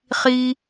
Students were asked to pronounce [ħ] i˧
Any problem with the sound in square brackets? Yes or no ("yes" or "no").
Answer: yes